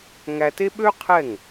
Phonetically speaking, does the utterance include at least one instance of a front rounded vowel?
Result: yes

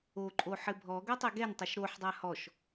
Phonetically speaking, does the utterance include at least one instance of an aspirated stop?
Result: no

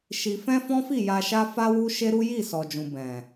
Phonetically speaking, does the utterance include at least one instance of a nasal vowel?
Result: yes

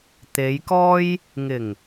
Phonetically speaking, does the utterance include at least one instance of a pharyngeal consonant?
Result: no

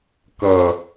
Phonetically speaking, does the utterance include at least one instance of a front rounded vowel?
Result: no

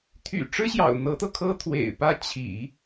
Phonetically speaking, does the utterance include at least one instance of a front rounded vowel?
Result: yes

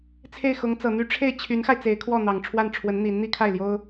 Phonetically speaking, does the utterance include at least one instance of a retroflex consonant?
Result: yes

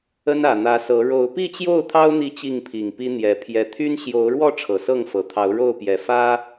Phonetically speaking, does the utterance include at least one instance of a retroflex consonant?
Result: yes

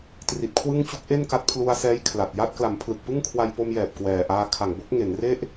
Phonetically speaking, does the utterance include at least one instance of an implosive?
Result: no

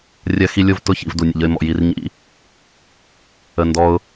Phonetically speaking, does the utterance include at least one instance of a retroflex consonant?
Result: no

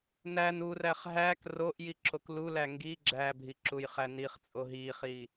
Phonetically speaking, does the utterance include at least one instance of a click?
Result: yes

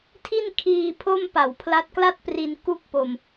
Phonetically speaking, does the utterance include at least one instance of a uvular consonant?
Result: no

